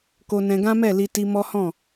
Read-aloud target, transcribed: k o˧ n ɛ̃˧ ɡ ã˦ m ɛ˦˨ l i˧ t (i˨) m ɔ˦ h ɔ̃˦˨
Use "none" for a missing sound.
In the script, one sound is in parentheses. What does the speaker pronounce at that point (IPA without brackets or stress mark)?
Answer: i˧